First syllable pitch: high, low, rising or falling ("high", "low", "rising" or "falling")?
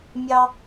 high